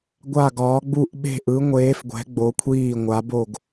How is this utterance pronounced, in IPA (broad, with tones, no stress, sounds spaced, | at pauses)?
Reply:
ɡʷ a˧˩ ɡ ɒː˩˧ ɡ͡b u˧˩ ʔ ɓ e̤˧˩ ʔ ɯ˩˧ ŋʷ eː˩˧ f ɡʷ ɛ̤˩˧ ɡ͡b o˩˧ kʷʰ iː˧˩ ŋʷ a˩˧ b o˧˩ ɡ